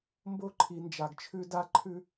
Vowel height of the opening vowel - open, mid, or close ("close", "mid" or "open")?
mid